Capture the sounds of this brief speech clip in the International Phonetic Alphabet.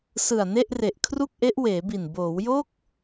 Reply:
s ɯ˨˩ a̯ n e˥˩ ʔ r e˨˩ ʔ kʰ r u˥˩ k̚ ʔ e˦˥ ʔ w eː˩˦ b i˨˩ n b oː˩˦ w j o˥˩ k̚

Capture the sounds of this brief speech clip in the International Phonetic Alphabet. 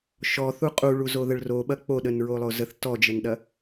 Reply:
ʃ ɔ θ u qʼ u ɭ u z o ð ə ɭ r o ɓ ɐ k͡p o ɗ ə n ɹ o lˠ o z ə θ t ɔ d͡ʒ ə n ɗ ɐ

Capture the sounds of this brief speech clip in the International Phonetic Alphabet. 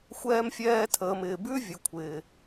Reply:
xʷ ɛː˧ m fʲ ɛː˧ tʰ əː˨ m ɪː˨ b ʉ˦ vʲ ə˨ kʷʰ ɪː˨

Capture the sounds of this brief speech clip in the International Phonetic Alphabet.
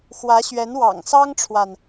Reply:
x w ä˧˥ ɕ ɥ ɛ˧˥ n w ɑ̰˨˩ ŋ s ɑ˥ ŋ ʈ͡ʂʰ w a˨ n

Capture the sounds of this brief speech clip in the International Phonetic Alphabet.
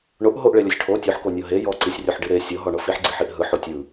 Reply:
ɳ o ʔ ɦ o ʔ ɭ e lʲ ɔ sʲ ʈʰ o tʲ o ħ k o nʲ ɤ ɦ e j ɔ ǀ i sʲ rʲ o ħ ɖ i ɾ e sʲ ɤ ɦ ɔ ɳ ɤ f i ħ ɡ͡ǀ i ħ i ʔ ɦ ɯ ħ o tʲ ɯ

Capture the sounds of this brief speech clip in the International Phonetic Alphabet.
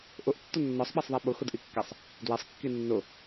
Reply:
ʔ ʊ ʔ tː ʊ nː ɔ sˤ ɓ ɛ sˤ ðˤ i ɓ ʊ x ʊ d ʔ i kː ɛ sˤ | d w e sˤ kː i nː ʊ

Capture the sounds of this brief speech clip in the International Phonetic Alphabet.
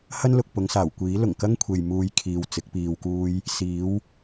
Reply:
h ɐ˥ n l ʊ˨ k̚ p ʊ˨˧ ŋ s aː˨˩ w kʷ iː˨˥ l ʊ˨˩ ŋ k ɐ˥ ŋ kʷʰ e˨ j m uː˧ j kʰ iː˨ w t͡s ɪ˨˥ k̚ p iː˧ w k uː˥ j | s iː˨˥ w

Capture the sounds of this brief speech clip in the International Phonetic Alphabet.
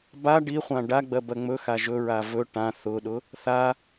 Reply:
b a ɖ i χʷ ã ɖ a ɡ͡b ɜ b ɜ ŋ͡m ɵ x a ʒ ɵ ɹ a v ɵ ʈ ã θ ʊ ɗ ʊ | θ a

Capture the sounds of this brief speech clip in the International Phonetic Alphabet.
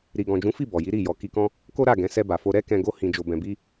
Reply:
ɾ i˨ ɡ ɔ̃˨ d͡ʒ ũ˨˦ f i˦˨ b ɔ˨ j i˨˦ ɾ i˦˨ j ɔ˨˦ k i˧ k ɔ̃˦ | k o˦ ɾ a˦˨ ɡ ɛ̃˨˦ s ɛ˧ b a˨ f o˧ ɾ ɛ˦ k ɛ̃˧ ɡ o˦ h ĩ˧ d͡ʒ o˧ b ɛ̃˧ b i˦

